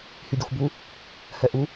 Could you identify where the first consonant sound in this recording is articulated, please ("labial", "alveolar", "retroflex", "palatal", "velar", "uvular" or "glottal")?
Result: glottal